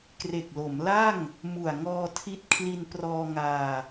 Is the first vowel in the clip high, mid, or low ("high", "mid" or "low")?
mid